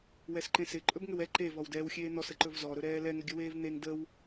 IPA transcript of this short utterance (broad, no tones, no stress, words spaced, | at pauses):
wɛsǃẽsɪ ǃʼɵbŋʏwɛ ǃev ɔwdɛːwxʲeːn̪ɔs əǃɵvzɔ ɾɵɾɛːlɛ ŋəɡʲəweːvn̪eŋ dəw